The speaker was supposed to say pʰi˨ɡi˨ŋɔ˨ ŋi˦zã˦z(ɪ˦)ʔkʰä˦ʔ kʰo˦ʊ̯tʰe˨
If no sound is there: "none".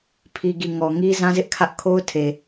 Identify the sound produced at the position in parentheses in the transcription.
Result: ɪ˦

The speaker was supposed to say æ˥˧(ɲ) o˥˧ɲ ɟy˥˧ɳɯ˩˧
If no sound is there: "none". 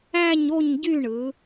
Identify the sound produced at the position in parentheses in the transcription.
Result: ɲ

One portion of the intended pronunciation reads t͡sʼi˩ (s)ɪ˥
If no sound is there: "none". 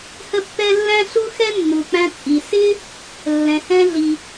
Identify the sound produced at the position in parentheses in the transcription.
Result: s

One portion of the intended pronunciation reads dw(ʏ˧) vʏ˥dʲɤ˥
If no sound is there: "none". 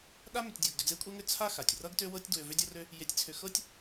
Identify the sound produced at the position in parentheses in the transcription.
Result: ʏ˧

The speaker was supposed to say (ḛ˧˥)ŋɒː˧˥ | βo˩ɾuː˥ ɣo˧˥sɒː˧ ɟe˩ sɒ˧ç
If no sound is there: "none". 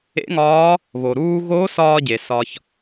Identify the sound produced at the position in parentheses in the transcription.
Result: ḛ˧˥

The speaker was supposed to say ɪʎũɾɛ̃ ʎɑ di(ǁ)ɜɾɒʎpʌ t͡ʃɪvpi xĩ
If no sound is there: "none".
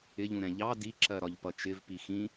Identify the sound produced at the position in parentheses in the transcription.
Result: ǁ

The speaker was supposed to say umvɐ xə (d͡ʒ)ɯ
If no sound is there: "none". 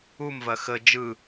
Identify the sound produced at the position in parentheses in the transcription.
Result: d͡ʒ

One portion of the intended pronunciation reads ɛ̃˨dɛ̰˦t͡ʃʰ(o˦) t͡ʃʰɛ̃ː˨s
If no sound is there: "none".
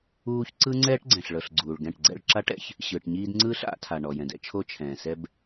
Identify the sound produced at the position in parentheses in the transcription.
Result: o˦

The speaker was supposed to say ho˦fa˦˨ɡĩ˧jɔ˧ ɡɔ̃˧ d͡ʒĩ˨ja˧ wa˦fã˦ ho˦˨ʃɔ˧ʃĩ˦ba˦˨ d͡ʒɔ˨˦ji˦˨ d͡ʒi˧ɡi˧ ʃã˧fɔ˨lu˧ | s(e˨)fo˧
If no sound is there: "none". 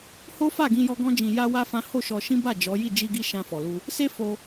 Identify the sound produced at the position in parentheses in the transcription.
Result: e˦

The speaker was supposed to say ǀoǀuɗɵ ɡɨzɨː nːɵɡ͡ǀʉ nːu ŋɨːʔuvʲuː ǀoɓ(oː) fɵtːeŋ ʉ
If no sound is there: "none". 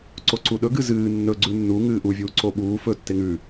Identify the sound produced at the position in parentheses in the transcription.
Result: uː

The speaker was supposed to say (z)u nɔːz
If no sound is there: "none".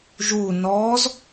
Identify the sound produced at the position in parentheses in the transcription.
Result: ʒ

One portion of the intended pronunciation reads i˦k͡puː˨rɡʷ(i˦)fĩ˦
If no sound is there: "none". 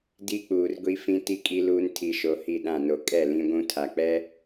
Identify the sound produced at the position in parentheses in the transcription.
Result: i˦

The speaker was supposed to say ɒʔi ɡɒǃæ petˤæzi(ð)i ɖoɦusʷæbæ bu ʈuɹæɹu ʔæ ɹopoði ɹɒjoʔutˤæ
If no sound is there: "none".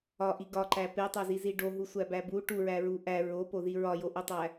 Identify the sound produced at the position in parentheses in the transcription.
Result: z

